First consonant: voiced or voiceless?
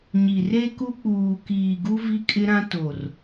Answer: voiced